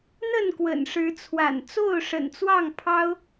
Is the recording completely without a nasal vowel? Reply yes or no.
yes